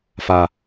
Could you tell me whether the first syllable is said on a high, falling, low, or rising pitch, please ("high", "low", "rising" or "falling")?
high